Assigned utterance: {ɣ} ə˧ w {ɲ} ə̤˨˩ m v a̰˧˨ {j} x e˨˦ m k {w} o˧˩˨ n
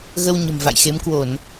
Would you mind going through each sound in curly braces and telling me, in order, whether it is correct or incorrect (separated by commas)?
correct, correct, correct, correct